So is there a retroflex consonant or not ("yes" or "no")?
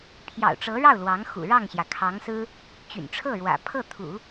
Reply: yes